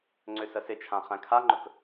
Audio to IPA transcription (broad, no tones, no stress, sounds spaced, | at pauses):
ŋ͡ǀ ʏ s ə s ɪ t͡ʃʰ ã χ æ̃ kʰ a ŋ͡ǃ ɵ k